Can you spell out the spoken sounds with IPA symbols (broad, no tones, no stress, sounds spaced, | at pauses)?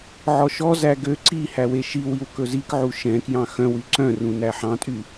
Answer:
ʕ ɔ ʃ ɔ z æ ɡ ø ǀ i h æ w e ʃ i w i w k ɵ z i k ʕ u ʃ ɛ̃ k j ɑ̃ x œ̃ w y ǀ œ̃ r ũ n æ ħ ɑ̃ tʼ y